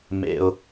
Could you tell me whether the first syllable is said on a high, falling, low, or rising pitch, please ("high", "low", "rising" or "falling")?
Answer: low